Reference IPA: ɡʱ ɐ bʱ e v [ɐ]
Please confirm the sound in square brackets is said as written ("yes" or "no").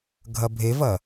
yes